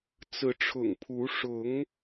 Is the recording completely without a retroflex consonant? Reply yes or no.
no